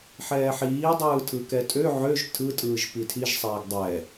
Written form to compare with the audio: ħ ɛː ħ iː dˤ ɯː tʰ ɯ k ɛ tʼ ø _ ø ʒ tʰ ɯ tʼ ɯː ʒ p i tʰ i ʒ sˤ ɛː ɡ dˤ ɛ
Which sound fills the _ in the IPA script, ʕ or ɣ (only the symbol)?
ʕ